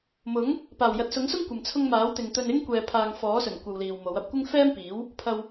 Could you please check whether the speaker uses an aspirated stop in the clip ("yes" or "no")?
yes